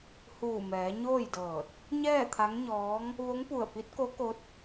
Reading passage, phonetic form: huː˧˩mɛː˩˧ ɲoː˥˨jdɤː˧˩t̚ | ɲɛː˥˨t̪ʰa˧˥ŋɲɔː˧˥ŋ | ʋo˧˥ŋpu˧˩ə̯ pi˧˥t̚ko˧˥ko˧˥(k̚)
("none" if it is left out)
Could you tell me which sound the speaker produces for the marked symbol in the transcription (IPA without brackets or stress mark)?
t̚